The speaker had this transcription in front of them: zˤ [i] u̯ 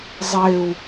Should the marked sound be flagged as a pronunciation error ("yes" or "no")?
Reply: yes